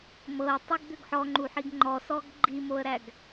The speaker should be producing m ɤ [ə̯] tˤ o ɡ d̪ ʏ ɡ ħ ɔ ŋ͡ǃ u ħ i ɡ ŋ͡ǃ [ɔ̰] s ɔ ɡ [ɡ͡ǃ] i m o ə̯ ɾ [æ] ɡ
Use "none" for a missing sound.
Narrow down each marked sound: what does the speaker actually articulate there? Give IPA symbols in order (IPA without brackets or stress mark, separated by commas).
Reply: ə̯, ɔ, ɡ͡ǃ, æ